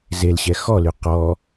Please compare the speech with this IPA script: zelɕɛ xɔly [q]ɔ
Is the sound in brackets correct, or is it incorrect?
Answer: correct